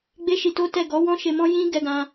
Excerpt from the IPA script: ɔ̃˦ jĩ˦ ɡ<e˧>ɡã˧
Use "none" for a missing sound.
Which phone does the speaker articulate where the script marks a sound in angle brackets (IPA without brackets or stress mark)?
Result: ɛ˧